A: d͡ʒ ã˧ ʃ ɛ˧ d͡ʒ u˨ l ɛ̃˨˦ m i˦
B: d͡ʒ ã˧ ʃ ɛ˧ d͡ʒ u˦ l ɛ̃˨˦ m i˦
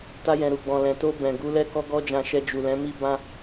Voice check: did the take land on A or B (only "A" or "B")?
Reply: A